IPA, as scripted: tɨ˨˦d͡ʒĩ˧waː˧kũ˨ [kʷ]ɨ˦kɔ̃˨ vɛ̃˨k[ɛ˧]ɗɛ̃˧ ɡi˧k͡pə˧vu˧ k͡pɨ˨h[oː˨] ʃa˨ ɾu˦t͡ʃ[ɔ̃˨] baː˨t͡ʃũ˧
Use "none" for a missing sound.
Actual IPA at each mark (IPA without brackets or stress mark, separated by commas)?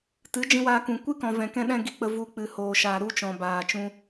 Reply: kʷ, ɛ̃˧, oː˨, ɔ̃˨